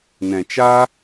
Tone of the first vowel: low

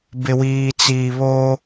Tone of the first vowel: low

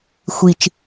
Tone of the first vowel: low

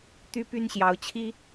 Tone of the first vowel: high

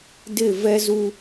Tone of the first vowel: falling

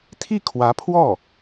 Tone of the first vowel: falling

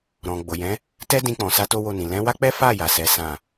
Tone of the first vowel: low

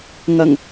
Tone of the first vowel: low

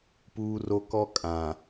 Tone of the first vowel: high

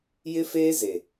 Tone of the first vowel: high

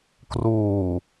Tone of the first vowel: low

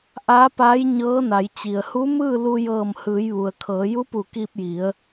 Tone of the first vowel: rising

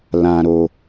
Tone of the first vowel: low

